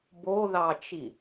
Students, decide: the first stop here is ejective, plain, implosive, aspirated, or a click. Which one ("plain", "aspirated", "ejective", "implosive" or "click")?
plain